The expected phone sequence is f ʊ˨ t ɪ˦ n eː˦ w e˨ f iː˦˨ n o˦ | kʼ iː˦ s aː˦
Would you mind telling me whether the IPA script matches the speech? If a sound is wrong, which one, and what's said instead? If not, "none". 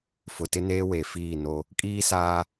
none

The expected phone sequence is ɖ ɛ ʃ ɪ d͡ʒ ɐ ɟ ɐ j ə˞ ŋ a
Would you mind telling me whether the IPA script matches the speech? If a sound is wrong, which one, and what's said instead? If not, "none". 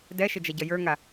ɖ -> d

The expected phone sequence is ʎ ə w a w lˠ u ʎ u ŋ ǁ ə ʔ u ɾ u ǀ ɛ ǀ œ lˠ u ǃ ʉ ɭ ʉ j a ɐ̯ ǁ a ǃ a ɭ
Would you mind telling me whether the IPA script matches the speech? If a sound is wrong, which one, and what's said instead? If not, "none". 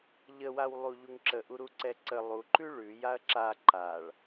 œ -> ə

